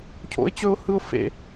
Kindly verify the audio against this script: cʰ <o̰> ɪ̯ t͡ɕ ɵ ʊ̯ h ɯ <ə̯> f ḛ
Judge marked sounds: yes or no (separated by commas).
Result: yes, no